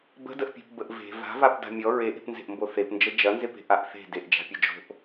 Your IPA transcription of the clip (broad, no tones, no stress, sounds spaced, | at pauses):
b ə̤ d ə ʔ pʲ e̤ p b ə ʔ v e̤ v a̤ v a p d a̤ mʲ ɔ ɹ e ʔ e̤ p n z e̤ ʔ m b o θ e p n d͡ʒ ə d͡ʒ ɐ n z e p e̤ ʔ a ʔ θ e̤ d e ʔ d͡ʒ a̤ pʲ ɐ d͡ʒ o̤ ʔ